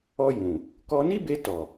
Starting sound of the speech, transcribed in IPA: ɔ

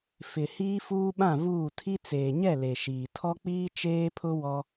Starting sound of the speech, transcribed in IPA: f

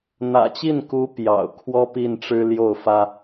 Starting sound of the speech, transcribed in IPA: n̪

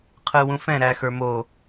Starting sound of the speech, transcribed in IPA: qʰ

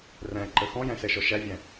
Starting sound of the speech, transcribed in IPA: r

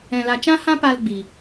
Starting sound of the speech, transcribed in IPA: ɛ̃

